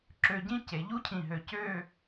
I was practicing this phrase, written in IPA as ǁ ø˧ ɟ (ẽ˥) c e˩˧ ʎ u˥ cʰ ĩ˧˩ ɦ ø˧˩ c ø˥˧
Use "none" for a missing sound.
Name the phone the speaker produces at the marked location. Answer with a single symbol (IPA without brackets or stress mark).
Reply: ĩ˥